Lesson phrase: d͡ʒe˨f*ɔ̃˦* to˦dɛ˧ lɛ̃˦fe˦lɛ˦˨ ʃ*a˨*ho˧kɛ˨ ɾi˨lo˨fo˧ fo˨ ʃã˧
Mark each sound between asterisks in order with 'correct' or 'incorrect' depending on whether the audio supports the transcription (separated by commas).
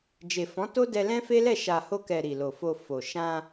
incorrect, correct